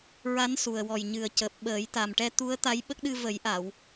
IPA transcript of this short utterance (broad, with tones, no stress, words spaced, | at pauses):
ɹa˧˥n su˨˩ə̯ wɔ˨˩j ɲɨ˨˩ə̯cəː˨˩p̚ ɓəː˨˩˦jt̪a˨˩mʈɛ˧ t̪u˧˥ə̯t̪a˧˥jɓə˦˥k̚ɗɨ˧ və˨˩˦jʔa˨˩˨w